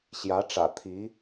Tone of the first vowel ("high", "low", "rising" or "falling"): rising